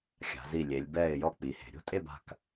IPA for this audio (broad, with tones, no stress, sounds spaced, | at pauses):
xʲ a̤˩˧ z i˧˩ lʲ e˩˧ lʲ b ɛː˥˨ ɪ̯ j ɔ˥˨ k͡p i˩˧ h e̤˩˧ ɾʲ o̤˥˨ tʼ e˥˨ b a̤˧˩ k